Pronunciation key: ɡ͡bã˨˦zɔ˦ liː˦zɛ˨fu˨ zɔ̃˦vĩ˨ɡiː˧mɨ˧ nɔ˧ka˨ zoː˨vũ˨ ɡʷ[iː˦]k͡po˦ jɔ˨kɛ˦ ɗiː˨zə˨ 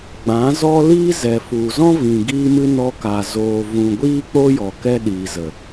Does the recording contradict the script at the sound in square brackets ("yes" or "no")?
no